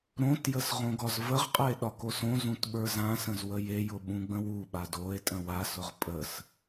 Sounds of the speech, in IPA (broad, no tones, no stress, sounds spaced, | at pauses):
ɾ õ t j ə s ʁ õ ɡ ɒ z v ə ʁ qʼ ə e̯ ɗ ɒ k o s õ z ũ t ɓ ə˞ z ã s ə̃ z w ə j e j ʊ ɓ ũ ɡ͡b ə̃ w u ɓ a d o e̯ tʼ ə̃ w a s ʊ ʁ pʼ ə s